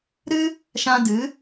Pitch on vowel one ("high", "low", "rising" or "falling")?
high